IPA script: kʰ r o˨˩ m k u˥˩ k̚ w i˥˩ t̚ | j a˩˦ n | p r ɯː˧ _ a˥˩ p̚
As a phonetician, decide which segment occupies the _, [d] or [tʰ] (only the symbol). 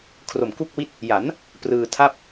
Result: tʰ